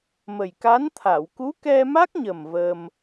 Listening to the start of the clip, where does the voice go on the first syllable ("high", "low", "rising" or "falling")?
low